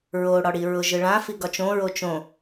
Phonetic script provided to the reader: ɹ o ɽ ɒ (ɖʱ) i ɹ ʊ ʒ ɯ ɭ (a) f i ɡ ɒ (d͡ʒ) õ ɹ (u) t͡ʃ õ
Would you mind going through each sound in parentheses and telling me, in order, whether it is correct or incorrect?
incorrect: ɽ, incorrect: ã, incorrect: t͡ʃ, incorrect: o

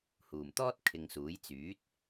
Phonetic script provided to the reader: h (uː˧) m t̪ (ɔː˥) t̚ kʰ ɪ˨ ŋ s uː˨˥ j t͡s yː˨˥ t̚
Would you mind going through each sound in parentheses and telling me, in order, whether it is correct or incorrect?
incorrect: uː˨˩, correct

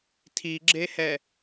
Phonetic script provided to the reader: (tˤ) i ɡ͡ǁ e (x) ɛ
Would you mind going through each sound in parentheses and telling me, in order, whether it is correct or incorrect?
incorrect: tʰ, incorrect: h

